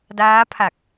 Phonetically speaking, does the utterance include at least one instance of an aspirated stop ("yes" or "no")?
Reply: yes